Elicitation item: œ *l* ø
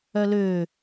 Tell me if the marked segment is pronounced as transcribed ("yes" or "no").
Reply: yes